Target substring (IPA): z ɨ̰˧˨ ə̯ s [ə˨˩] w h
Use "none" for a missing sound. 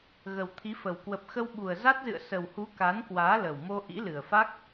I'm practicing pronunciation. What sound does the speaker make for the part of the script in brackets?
ə˨˩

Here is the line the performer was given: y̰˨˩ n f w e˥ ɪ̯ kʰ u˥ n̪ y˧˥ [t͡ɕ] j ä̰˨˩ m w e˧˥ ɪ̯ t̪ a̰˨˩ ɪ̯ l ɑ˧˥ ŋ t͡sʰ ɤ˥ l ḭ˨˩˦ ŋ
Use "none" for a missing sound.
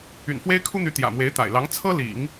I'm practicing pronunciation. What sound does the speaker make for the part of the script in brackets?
t̪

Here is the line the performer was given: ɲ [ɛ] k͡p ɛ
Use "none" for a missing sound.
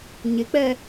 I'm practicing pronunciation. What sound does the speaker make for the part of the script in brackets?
ɪ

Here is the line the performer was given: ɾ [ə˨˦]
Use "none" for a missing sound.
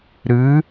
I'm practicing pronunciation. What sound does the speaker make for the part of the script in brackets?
ɨ˨˦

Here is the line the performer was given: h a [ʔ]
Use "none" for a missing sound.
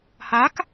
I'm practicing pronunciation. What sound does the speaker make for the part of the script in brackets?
k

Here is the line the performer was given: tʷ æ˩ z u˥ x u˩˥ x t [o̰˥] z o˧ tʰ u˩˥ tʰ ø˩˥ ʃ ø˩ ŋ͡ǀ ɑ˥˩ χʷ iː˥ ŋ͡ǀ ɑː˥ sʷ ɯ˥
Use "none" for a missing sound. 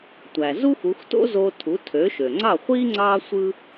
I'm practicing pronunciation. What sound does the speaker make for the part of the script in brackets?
o̰˥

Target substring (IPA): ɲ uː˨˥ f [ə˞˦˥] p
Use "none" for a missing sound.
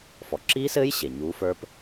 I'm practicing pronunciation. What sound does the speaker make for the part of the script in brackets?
ə˞˦˥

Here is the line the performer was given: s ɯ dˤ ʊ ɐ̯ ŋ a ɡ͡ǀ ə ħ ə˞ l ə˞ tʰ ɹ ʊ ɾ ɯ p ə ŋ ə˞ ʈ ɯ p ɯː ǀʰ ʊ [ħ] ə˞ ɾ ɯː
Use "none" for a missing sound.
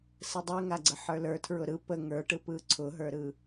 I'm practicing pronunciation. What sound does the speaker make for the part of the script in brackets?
ɦ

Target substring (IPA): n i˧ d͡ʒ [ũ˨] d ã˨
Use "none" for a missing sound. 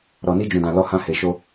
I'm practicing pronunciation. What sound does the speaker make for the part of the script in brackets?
ũ˨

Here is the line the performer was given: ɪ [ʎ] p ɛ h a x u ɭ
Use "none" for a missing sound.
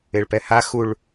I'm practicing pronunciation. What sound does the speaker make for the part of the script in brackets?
ɭ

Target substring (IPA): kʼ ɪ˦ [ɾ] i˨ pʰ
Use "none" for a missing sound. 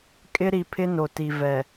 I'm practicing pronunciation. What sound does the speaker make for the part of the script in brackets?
ɾ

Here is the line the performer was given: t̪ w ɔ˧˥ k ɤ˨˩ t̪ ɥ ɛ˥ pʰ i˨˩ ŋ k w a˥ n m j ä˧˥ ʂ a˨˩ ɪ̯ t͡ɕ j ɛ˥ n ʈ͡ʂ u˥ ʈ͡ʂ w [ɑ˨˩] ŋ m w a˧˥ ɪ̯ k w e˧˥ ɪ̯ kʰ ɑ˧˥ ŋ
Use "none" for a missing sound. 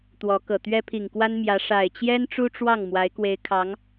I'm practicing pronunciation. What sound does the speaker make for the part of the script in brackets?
ɑ˥˩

